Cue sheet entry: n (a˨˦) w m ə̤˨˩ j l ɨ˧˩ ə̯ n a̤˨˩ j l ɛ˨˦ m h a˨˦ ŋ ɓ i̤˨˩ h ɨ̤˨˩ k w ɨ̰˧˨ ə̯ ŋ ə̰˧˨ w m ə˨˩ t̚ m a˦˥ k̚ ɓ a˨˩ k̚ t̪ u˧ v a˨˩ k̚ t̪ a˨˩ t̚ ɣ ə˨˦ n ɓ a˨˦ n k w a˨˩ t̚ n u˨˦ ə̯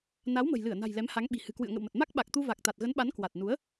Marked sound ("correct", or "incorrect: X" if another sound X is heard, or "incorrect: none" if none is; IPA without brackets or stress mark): correct